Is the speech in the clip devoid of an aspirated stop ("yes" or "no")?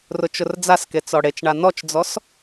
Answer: yes